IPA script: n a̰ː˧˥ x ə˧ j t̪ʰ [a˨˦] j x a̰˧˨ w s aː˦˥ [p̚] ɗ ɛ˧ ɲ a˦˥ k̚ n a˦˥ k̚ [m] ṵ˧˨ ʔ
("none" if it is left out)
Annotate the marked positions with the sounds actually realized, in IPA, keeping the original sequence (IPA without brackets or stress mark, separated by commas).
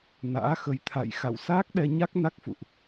a̰˧˨, k̚, f